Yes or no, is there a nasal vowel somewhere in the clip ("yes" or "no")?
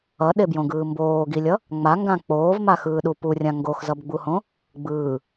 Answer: yes